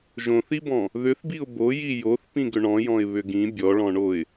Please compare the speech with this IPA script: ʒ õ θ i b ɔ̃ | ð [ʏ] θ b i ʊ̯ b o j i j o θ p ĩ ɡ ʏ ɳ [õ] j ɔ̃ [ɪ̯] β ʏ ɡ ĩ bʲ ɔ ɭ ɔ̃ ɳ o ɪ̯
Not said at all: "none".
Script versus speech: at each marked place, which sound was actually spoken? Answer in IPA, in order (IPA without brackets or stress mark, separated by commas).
ʏ, ɔ̃, ɪ̯